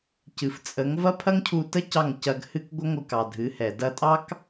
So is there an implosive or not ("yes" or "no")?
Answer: no